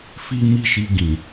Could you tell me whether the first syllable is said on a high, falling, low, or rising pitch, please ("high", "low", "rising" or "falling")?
high